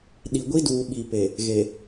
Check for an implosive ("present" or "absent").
present